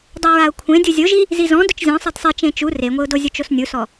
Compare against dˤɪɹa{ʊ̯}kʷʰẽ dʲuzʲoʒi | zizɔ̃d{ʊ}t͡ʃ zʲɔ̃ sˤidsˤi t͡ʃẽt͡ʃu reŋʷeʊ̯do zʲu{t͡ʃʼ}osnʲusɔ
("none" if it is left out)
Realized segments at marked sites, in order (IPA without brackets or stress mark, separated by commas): ʊ̯, ʊ, t͡ʃ